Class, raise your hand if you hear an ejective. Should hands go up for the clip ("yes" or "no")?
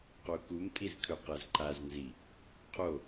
yes